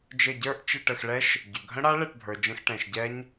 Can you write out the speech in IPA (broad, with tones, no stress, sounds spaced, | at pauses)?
d͡ʒ ɘ˧˩ ɟ ə˞˥˨ ʔ t͡ʃ ɘ˥˨ ʈ ə˧˩ x ɭ ɛ˦˥ ʃ | ɟ ʏ˩ ɡʱ ə̃˦˥ ɽ a˦˥ ɭ ɛ˥˨ ʈ bʱ ə˞˩ d͡ʒ ə̃˧˥˧ x ʈ ɛ̃˩ ʃ ɟ ɛ˦˥ ɲ